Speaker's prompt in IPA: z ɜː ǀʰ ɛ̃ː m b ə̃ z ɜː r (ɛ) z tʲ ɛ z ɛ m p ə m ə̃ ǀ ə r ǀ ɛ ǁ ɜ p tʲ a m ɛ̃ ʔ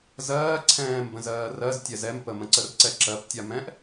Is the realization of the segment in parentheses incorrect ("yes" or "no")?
yes